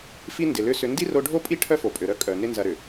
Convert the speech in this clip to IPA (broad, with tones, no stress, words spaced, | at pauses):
fi˦ndɪ˨lʏ˦sʏ˧ ndi˦ro˧ɖʱo˦pʼi˦ ʈʰœ˦fo˨pʼø˨ɾœ˦ kʼœ˨ nɪ˦nzɐ˧ɾʏ˨